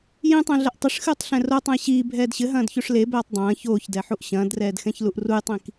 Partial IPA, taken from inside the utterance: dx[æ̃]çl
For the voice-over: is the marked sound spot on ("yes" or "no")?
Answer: no